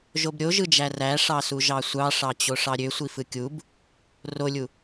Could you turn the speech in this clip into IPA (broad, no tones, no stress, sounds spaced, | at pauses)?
ʒ o b ɾʲ o ʒ ɯ d͡ʒ æ r æ ʂ ɑ s u ʒ ɑ sʷ ɑ ʂ ɑ t͡ɕ o ʂ ɑ ɾʲ ø sʷ i f ɯ kʲ u b | r o lʲ u